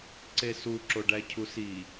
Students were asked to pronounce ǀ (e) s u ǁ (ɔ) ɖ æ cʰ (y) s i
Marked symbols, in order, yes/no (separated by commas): yes, no, no